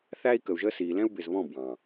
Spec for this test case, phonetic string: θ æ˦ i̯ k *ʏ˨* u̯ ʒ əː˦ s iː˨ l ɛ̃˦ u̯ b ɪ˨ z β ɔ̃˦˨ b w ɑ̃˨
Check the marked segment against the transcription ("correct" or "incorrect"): incorrect